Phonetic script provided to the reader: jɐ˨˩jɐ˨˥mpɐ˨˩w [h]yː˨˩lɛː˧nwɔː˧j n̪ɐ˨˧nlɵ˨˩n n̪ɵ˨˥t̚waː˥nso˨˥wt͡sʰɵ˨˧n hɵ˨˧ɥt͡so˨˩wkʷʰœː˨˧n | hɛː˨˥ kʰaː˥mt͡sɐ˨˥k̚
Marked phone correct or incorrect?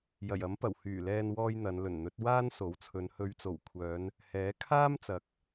correct